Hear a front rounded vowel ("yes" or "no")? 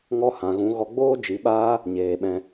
no